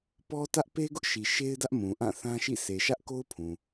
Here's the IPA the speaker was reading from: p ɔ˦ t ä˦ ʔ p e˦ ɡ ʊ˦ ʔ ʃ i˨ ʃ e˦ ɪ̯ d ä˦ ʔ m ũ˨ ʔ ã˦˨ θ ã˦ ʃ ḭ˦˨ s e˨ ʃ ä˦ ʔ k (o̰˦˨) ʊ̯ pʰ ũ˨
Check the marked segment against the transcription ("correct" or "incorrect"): incorrect